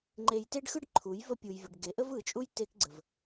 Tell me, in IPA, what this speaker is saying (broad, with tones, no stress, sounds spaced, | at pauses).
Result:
ŋ͡ǃ e˧ j t e˦ ɖ x ɯ˦ ɖ ǃʰ u˨˦ j v ə˦ pʲ u˧ j vʲ ə˧ ɖ ɡ e˨˦ ʔ ə˦ v ɯ˨˦ t͡ʃʼ u˦ j t e˦ k ɡ͡ǀ ə˧ v